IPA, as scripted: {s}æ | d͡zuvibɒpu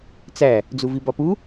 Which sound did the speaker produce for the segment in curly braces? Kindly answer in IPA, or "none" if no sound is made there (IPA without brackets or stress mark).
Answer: t͡s